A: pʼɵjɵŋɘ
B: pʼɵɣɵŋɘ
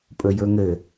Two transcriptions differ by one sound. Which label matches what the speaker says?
A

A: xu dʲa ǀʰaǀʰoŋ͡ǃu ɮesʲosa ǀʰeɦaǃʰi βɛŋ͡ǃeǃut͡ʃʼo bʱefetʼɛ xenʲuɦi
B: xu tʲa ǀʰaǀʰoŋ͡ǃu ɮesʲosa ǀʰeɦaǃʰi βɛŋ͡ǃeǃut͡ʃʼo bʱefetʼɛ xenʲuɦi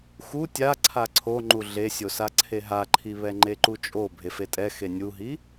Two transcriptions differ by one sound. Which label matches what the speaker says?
B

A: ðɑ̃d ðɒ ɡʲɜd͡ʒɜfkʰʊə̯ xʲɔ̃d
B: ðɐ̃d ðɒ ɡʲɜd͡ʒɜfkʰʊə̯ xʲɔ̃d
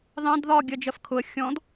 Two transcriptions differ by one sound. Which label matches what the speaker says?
A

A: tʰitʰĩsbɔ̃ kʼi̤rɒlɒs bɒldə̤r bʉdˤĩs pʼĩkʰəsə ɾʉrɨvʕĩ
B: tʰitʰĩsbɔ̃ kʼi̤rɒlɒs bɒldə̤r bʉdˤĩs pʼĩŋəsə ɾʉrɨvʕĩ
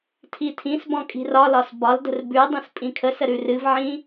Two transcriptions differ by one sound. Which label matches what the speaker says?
A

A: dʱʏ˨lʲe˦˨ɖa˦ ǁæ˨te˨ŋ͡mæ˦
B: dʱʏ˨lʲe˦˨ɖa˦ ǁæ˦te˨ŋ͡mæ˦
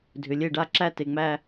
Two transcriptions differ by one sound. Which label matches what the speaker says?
B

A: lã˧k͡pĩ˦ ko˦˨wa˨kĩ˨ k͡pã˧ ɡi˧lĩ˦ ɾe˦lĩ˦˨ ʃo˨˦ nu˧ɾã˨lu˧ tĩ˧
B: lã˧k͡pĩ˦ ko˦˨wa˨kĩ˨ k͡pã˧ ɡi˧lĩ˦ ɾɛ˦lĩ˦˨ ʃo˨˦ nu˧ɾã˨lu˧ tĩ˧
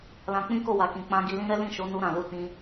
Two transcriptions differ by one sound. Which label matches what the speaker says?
B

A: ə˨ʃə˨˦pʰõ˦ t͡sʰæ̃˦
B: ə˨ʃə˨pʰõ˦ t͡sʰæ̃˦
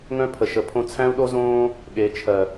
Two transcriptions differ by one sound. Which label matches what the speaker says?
A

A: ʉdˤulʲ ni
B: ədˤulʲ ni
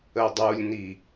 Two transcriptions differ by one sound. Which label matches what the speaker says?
B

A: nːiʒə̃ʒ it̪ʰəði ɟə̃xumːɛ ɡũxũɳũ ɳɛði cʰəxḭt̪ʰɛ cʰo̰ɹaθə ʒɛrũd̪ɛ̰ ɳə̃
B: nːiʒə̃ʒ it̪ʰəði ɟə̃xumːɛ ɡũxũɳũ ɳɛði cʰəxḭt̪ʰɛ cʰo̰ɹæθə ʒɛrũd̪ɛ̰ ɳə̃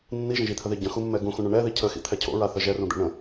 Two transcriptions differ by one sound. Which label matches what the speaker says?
A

